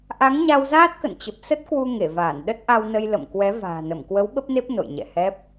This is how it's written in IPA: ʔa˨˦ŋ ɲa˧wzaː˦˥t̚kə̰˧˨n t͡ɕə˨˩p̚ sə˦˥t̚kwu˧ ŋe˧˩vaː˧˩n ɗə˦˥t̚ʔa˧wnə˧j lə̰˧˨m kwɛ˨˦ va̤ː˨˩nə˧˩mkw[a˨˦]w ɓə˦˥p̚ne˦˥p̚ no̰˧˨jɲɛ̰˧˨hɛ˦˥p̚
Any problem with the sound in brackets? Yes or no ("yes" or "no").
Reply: yes